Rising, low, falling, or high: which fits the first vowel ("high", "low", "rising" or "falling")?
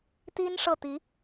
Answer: high